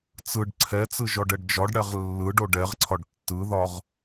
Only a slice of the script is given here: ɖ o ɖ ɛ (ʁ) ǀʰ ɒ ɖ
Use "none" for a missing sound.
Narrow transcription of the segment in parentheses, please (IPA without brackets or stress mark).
ʁ